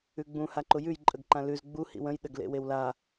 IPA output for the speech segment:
ʉɡ͡bũ haǃʊjʉj ǃʼəɡǃãlʉz ɡ͡bu hḭwə̃j ɗəɡ lḛwewla

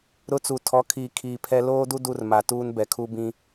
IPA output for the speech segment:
ɾʊ˦t͡su˨ tʰɔ˨˦kʰiː˨ kʰiː˨pʰɛ˦ loː˦du˦ du˦rma˨tuː˦n bɛ˨kʰu˦bĩ˦

